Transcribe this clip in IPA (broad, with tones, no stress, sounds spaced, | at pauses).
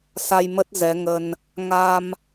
s a˧ j m ə˦˥ t̚ z ɛ˨˦ ŋ ə˧ n | ŋ a˧ m